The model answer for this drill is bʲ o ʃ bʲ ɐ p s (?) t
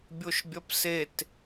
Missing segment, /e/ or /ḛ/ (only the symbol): e